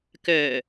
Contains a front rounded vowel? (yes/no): yes